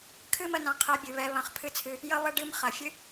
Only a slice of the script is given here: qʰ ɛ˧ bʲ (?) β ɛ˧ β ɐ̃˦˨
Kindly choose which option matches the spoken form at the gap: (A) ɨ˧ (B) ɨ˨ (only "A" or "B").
B